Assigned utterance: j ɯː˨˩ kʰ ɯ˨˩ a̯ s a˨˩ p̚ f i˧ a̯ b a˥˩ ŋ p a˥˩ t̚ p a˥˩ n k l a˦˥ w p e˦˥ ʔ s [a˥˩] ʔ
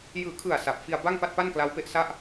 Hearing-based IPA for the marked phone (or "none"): a˥˩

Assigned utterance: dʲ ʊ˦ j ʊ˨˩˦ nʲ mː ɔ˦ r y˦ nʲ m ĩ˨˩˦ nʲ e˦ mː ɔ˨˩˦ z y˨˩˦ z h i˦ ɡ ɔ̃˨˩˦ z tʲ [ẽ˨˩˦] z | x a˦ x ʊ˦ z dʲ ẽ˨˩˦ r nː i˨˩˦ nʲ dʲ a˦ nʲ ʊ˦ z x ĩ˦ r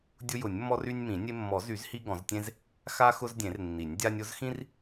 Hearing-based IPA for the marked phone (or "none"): ẽ˦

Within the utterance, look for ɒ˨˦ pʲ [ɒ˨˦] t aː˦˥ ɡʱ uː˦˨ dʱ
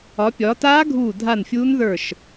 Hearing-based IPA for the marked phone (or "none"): ɒ˨˦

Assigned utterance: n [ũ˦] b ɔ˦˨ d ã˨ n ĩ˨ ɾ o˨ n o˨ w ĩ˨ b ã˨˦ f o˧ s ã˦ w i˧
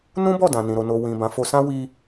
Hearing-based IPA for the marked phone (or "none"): ũ˦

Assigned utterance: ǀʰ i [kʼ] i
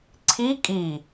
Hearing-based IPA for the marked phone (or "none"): kʼ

